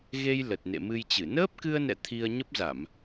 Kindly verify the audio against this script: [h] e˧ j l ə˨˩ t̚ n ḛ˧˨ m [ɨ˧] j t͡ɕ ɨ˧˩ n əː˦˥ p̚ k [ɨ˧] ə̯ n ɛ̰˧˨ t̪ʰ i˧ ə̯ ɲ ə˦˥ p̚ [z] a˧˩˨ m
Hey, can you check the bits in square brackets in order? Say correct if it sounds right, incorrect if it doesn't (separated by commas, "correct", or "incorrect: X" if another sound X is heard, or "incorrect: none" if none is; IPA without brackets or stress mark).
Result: incorrect: ɣ, correct, correct, correct